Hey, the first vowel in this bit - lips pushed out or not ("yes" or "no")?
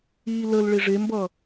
no